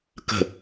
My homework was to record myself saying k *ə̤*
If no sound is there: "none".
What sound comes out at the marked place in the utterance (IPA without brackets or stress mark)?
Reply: ə̤